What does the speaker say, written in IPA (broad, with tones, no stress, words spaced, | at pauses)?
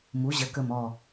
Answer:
mu˩˧ʑə˩˧kə˨˩mɔ˨˩